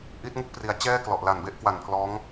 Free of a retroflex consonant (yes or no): yes